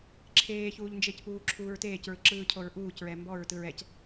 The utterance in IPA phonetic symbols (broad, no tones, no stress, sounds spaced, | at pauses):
ǁʰ eː ç uː ʎ n d͡ʒ e c p uː ǁʰ uː ɹ t eː c ɹ ɯ ǁ ɯː cʰ o ɹ ʔ uː c ɹ ɛ m b ɔ ɹ t ɯ ɹ ɛ c